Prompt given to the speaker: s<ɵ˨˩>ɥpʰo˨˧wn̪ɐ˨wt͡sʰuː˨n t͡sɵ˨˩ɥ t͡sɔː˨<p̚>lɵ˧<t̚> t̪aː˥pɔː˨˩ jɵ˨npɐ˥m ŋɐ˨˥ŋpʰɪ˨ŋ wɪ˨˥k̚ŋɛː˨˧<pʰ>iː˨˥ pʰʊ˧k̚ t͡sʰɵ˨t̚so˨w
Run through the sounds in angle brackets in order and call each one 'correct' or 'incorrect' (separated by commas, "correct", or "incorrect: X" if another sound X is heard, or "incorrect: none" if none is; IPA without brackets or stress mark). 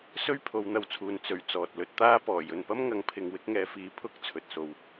incorrect: ɵ˥, incorrect: t̚, correct, incorrect: f